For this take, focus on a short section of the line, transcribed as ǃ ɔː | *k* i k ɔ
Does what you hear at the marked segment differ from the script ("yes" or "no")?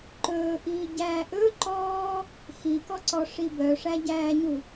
yes